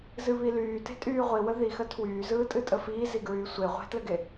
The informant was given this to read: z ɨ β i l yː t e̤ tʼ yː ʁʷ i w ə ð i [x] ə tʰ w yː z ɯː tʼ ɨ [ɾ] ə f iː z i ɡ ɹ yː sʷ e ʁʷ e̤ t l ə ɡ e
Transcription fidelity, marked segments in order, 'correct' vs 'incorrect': correct, incorrect: tʼ

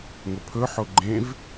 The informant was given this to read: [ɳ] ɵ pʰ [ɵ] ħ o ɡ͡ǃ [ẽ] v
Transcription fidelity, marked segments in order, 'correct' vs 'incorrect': incorrect: ŋ, correct, correct

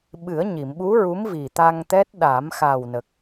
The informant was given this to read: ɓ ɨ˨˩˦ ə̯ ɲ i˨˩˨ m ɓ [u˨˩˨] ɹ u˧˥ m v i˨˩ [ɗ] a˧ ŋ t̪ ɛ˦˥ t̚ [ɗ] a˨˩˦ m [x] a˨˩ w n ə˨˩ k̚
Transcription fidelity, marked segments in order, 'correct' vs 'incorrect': incorrect: u˧˥, incorrect: t̪, correct, correct

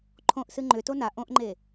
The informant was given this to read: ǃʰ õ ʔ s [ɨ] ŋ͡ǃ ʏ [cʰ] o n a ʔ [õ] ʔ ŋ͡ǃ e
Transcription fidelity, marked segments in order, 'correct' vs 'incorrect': correct, incorrect: t, correct

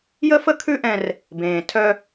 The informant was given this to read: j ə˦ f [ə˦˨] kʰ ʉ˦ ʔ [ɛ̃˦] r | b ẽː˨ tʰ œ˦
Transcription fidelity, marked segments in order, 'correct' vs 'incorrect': incorrect: ə˦, correct

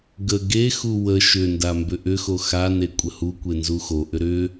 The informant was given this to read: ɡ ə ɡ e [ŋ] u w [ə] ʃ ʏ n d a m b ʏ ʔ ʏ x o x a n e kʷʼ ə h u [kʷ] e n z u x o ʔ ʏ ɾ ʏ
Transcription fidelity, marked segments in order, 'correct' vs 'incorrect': incorrect: x, correct, correct

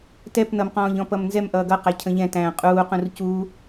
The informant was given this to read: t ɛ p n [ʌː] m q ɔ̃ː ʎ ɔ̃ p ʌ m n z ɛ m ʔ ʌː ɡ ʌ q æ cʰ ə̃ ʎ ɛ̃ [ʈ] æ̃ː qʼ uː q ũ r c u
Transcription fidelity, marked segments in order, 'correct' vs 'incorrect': incorrect: ʌ, incorrect: t

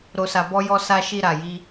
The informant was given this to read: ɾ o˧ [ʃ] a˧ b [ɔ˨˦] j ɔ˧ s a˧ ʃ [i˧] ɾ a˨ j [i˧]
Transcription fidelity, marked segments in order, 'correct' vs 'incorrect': incorrect: s, incorrect: ɔ˧, correct, correct

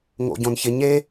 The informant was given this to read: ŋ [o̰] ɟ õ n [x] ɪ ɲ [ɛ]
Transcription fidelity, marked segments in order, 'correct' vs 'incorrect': correct, incorrect: ç, incorrect: e

